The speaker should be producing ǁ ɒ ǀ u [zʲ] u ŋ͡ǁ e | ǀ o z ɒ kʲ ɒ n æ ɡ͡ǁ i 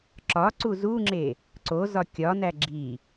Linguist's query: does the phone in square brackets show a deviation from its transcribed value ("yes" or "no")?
yes